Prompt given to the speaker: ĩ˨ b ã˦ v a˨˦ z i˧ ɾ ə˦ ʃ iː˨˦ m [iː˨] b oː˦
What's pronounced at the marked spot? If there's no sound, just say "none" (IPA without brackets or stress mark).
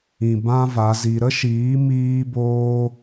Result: iː˦